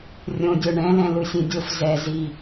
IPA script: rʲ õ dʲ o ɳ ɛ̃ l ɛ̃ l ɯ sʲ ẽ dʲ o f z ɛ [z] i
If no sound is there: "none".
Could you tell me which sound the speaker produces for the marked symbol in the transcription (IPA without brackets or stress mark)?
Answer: z